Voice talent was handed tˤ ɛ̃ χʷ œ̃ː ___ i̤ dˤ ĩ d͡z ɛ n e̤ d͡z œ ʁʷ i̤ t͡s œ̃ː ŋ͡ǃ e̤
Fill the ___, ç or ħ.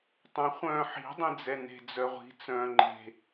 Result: ħ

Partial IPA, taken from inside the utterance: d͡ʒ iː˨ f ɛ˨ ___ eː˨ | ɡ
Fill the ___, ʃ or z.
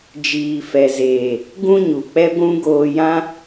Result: z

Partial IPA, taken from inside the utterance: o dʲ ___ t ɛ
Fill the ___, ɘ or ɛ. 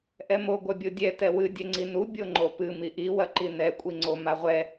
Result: ɛ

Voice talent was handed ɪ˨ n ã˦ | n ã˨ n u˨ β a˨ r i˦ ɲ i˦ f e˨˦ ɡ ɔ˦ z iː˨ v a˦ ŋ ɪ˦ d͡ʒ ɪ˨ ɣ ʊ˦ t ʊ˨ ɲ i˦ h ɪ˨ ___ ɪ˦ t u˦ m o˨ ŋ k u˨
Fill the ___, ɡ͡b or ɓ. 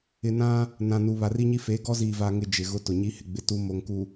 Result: ɡ͡b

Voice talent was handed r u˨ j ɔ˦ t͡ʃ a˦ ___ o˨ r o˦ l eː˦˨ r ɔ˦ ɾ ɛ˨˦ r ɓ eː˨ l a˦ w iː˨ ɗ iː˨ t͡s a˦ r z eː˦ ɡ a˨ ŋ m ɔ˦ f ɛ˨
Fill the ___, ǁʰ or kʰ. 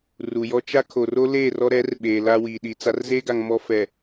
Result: kʰ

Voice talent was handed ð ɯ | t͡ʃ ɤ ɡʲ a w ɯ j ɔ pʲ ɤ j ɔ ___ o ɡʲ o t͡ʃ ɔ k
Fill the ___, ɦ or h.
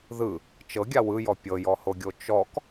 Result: h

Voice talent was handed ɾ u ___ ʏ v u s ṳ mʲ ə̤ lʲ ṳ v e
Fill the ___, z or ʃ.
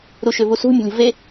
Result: ʃ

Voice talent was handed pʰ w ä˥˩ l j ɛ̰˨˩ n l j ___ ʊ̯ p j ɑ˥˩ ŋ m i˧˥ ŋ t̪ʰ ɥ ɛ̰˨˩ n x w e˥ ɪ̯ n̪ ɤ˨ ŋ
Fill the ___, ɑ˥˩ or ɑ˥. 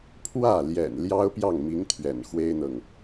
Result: ɑ˥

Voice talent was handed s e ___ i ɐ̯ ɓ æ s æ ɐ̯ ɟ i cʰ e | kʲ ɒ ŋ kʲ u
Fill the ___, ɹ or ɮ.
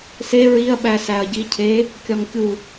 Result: ɹ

